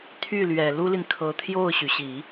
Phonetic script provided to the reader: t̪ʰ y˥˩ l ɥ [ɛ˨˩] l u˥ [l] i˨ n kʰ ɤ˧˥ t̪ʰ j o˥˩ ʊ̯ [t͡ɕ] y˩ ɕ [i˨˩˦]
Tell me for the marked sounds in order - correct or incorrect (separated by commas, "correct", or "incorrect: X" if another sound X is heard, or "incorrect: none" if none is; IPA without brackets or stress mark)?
correct, correct, incorrect: ɕ, correct